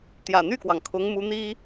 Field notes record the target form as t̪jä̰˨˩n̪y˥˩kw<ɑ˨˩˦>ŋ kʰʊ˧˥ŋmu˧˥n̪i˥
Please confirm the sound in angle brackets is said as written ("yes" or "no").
no